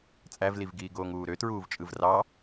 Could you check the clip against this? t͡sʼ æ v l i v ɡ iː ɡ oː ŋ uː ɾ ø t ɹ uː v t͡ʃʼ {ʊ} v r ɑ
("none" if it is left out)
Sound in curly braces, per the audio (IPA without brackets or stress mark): ɯ